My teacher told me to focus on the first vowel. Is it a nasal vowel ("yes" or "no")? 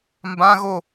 yes